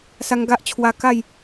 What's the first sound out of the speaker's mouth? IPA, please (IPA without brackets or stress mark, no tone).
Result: s